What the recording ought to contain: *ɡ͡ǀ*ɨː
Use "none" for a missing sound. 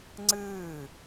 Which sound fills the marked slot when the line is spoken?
ŋ͡ǀ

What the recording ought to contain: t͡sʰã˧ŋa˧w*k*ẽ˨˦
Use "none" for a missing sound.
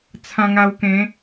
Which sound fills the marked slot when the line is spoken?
k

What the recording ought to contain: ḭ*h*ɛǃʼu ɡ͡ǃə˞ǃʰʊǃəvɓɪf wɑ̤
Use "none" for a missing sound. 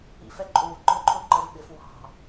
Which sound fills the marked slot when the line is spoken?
f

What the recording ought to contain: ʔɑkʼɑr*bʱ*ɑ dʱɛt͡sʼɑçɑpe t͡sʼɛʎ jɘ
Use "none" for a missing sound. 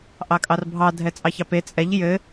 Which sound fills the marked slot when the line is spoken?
bʱ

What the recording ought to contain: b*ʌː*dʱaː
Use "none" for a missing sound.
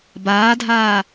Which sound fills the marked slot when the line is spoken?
aː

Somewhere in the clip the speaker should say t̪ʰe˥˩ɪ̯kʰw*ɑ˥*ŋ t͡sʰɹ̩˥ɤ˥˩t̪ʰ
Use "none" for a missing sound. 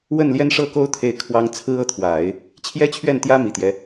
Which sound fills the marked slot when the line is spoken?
ɑ˥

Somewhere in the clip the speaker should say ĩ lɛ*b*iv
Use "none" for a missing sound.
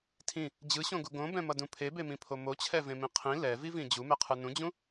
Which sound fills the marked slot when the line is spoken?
v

